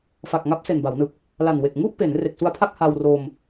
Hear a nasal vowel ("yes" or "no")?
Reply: no